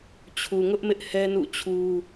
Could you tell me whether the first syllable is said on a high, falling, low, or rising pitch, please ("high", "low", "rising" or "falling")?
low